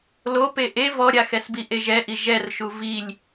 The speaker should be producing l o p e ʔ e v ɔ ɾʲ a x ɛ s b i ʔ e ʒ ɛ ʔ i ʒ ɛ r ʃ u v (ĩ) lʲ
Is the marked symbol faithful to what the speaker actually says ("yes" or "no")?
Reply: no